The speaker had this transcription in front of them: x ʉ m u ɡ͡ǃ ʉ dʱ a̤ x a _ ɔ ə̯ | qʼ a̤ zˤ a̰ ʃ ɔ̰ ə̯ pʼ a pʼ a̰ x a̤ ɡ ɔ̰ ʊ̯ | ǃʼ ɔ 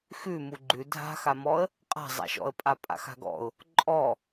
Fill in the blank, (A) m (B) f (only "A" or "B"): A